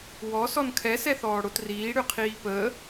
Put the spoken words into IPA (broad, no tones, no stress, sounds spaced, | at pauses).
w ɔ s ɔ n kʰ ɛ s ɛ θ ɔː ɽ o t r iː ɽ ʏ qʰ iː p əː